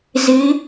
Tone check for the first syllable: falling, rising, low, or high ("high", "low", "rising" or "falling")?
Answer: rising